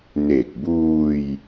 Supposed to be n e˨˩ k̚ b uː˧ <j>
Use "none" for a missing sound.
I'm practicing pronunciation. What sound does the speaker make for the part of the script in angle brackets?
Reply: j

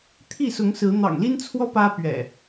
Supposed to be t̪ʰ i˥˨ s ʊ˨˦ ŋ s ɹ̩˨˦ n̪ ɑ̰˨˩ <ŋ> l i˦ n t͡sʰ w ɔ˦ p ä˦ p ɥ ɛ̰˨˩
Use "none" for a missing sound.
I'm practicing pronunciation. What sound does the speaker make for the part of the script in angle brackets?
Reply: ŋ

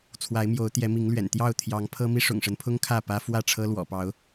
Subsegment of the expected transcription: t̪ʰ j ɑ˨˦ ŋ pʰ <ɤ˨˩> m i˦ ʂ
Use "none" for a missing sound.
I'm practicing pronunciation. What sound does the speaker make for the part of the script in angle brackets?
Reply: ɤ˦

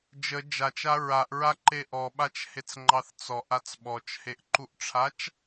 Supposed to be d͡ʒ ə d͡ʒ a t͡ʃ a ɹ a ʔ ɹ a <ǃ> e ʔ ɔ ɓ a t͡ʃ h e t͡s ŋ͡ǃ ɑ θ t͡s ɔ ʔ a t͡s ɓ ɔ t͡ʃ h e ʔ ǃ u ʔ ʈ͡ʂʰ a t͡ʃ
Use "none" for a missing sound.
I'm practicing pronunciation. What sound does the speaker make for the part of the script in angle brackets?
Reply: ǃ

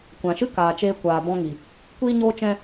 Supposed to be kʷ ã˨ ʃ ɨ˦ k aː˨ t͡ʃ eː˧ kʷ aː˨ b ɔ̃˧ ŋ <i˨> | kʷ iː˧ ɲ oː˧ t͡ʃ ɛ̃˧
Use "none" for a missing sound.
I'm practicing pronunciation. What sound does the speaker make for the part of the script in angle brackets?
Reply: i˨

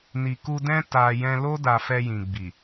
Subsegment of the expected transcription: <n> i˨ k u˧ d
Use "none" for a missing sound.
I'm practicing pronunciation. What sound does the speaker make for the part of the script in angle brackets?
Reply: n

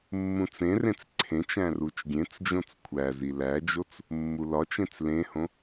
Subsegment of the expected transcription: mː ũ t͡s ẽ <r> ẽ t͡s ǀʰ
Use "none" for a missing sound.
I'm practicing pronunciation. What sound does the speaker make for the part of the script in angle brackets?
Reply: r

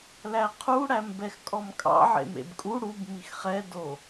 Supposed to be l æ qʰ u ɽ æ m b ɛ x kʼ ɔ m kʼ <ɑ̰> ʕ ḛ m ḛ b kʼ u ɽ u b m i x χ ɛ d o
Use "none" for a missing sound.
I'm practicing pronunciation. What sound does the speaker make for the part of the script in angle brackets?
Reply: ɑ̰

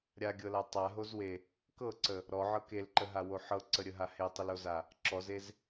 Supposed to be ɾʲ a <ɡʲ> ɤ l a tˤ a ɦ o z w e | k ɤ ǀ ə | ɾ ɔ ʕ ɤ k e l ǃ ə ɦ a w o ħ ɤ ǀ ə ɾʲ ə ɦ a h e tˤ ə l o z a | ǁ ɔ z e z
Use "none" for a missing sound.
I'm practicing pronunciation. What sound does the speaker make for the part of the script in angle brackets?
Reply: ɡʲ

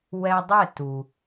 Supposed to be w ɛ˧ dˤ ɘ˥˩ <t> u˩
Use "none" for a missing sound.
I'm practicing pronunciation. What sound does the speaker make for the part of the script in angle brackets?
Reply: t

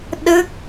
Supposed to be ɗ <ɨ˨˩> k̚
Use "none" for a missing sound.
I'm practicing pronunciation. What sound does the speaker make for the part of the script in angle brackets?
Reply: ɨ˦˥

